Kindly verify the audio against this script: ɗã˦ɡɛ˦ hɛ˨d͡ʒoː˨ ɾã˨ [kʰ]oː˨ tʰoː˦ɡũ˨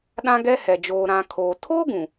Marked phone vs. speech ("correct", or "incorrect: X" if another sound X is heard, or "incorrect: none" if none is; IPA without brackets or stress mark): correct